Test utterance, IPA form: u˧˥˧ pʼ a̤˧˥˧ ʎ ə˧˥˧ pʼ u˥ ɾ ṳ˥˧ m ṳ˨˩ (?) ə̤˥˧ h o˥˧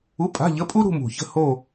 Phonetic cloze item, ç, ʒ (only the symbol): ç